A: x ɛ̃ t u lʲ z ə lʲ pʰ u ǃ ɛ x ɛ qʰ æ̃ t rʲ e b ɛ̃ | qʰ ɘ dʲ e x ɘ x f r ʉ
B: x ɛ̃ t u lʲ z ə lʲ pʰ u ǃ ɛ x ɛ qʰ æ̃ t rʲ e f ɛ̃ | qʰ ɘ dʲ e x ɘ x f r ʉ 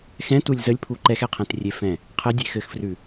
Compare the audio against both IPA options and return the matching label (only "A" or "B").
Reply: B